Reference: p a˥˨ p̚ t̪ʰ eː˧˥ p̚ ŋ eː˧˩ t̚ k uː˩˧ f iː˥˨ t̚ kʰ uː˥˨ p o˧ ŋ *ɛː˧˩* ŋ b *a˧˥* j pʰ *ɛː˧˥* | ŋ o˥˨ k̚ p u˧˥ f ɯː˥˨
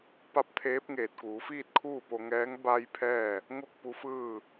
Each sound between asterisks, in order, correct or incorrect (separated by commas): incorrect, incorrect, incorrect